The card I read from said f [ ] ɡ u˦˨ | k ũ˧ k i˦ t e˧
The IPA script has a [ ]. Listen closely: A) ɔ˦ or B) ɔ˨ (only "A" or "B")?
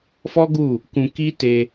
A